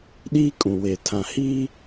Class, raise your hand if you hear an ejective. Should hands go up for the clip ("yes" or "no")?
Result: yes